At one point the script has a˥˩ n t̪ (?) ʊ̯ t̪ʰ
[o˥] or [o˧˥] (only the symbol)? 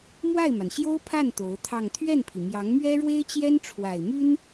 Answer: o˧˥